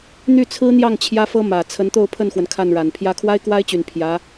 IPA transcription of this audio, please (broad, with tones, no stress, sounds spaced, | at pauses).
n̪ y˥˩ t͡sʰ ɹ̩˥ n̪ j ɑ˥˩ ŋ t͡ɕʰ j ä˥ f ɤ˥ m ä˨˩ t͡sʰ ə˧˥ n t̪ o˥˧ ʊ̯ pʰ ə˥˩ n x w ə˩ n kʰ a˥˩ n ɻ a˨˩ n pʰ j ä˧˥ kʰ w a˥ ɪ̯ k w a˥ ɪ̯ t͡ɕ y˨˩ n pʰ j ä˧˥